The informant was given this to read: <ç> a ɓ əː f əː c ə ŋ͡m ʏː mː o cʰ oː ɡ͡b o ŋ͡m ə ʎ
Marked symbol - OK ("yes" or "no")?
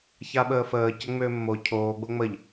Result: yes